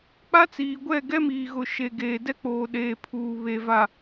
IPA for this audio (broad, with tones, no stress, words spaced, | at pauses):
k͡pa˦t͡siː˨ɡʷɛ˦˨ ɡɛ˦miː˨ɣʊ˨ ʃe˨ ɡeː˨dɛ˦k͡poː˨ ɗeː˨pʰuː˨ βe˨va˨